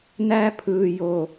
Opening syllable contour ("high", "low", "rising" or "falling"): high